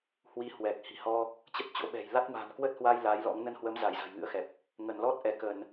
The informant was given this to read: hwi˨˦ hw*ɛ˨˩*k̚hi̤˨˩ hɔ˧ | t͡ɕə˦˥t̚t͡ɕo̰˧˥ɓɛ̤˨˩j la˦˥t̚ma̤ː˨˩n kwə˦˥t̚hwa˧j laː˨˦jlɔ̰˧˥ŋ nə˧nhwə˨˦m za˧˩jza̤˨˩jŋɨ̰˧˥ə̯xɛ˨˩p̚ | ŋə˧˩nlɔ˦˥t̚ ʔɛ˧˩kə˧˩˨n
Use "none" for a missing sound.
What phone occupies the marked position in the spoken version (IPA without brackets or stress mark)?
ɛ˨˩